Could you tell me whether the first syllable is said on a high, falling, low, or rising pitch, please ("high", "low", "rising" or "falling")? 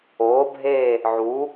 rising